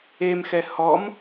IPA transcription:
e m x ɛ h ɔ m

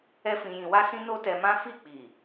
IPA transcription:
ɛ˦ f ĩ˧ j ĩ˧ w a˦ s ĩ˦ n o˦ t ɛ˧ m ã˦ f i˦˨ k͡p i˨

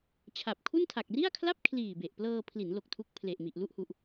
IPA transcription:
t͡ɕʰ a˨˩ p̚ kʰ u˥˩ n tʰ a˨˩ k̚ r i˥˩ a̯ kʰ l a˥˩ p̚ kʰ l iː˨˩ b e˨˩ ʔ p l ɤː˧ pʰ l i˩˦ n l o˨˩ k̚ tʰ u˦˥ k̚ pʰ l e˨˩ ʔ m i˨˩ ʔ l u˥˩ ʔ h u˨˩ ʔ

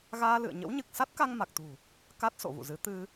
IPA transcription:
ɣ aː˧ l ɨ̰˧˨ ə̯ ɲ ə̰˧˥ w ɲ ɨ˨˩ k̚ s a˦˥ t̚ k a˧ ŋ m a˨˩ k̚ t̪ ṳ˨˩ | k a˦˥ t̚ s o̰˧˨ v ṵ˧˨ z ɨ˨˦ t̪ ɨ˧

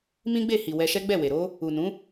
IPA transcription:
m ĩ˦ ɡ͡b e˦˨ h i˨ w ɛ˧ ʃ ɛ˦ ɡ͡b ɛ˦˨ w e˨ ɾ o˧ | u˨ n ũ˨˦

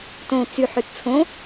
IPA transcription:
t õ t͡s y ħ ʉ t t͡sʰ õ

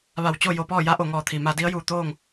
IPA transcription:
ʋ a˧˩ w t͡ɕ o˥˨ j o˧ p ɔː˥˨ j a˧˥ ʔ o˩ ŋ ɔː˧˩ t̪ʰ i˩ m a˧ d i˧˥ ə̯ j uː˧˩ t̪ oː˥˨ ŋ

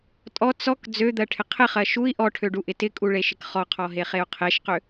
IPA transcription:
tʼ ɔ t͡s ɔ k d͡z ø d̪ ɜ ʈʰ ɪ qʰ ɪ χ ɜ ʃ u i̯ ʔ ɔ ʈʰ ø ɖ u ʔ ɪ t ɪ kʼ u ɭ e ʃ ɪ k χ ɔ qʰ ɔ ɦ e χ e u̯ qʰ e ʃ q ø

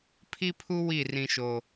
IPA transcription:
pʰ i˦ pʰ u˦ w i˦˨ r ĩ˦ ʃ o˦

